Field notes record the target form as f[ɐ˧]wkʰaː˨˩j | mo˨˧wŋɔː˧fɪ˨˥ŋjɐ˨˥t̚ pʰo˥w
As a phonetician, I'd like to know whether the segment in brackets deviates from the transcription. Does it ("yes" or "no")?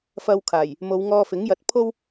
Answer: no